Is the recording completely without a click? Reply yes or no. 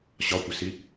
yes